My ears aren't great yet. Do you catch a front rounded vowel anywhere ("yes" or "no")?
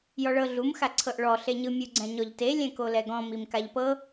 no